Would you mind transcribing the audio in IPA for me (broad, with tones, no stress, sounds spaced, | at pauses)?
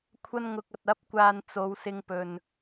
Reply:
kʷʰ ɐ˧ n ŋ ʊ˨ k̚ ɐ˨ t̚ ɐ˨˥ p̚ kʷ aː˨ n t͡s o˨˧ w s ɪ˧ ŋ p ɵ˨ n